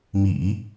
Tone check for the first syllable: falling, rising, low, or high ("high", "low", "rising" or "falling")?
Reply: low